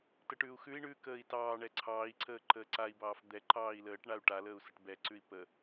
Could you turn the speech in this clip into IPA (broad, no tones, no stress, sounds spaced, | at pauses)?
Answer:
t ə ʈ ʉː u̯ x ʉ i̯ ɳ ʉː k əː i̯ t ɑː ɳ ɛ ǀʰ ɑː i̯ ǀ əː ǃ əː ǀ a i̯ b ɑː f d̪ ɛ ǃ ɑː i̯ l əː ʈ ɳ a u̯ ʈ a l əː u̯ s ə ʈ b ɛ ǀ ʉ i̯ p ə